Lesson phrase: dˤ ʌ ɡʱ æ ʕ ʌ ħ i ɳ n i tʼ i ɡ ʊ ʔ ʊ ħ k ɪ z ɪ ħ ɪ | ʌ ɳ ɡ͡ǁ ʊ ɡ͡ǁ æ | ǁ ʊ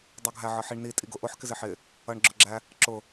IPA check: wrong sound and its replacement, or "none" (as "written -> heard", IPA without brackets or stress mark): none